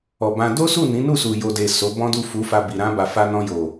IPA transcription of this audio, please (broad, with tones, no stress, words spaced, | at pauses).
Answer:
ɔ˨bã˧ do˦su˦˨ nĩ˨˦nu˦˨su˨ jo˨de˨ so˨˦bɔ̃˦du˦˨ fu˨˦fa˧ bi˨ ɾã˧ba˨fa˧ nɔ̃˧jo˨